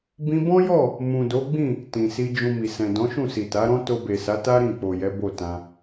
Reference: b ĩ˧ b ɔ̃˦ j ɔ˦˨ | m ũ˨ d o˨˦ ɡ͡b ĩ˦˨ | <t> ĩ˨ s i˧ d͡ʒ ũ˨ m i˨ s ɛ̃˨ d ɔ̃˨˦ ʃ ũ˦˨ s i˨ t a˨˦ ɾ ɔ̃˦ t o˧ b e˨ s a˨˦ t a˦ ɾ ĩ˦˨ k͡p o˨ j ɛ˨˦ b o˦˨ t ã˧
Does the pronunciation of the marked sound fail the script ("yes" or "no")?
no